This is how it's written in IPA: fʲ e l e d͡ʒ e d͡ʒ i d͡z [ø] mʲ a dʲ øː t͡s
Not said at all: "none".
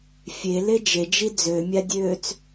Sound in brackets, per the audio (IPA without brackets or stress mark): ø